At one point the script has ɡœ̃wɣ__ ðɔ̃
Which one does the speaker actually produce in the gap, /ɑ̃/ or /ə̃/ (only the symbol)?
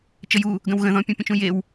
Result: ə̃